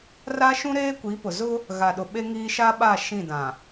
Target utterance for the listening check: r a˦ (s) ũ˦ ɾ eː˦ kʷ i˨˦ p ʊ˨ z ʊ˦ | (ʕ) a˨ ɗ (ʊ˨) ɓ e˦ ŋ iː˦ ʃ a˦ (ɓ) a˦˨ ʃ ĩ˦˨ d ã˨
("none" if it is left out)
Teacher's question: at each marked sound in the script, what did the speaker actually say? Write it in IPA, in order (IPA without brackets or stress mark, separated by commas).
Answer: ʃ, ɣ, ʊ˨, ɓ